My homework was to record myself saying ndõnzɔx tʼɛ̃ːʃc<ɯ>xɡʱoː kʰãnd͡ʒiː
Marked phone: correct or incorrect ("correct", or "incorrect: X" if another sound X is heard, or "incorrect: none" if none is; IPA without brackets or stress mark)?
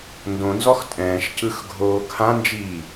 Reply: correct